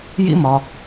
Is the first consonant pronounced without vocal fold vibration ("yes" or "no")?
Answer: no